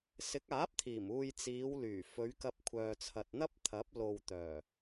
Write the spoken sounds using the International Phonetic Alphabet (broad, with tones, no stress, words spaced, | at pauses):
sɪ˨˥k̚aː˨˥p̚t̪ʰiː˨˩m uː˧jt͡siː˨˧wlyː˨˩ fɵ˨˧ɥ kɐ˧p̚kʷʰœː˨t͡sʰɐ˨t̚ n̪ɐ˥p̚t̪ʰɐ˨˥p̚ lo˨wt̪œː˨˩